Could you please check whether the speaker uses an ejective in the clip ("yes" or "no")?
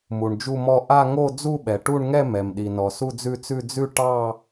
no